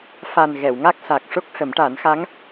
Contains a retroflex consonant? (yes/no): yes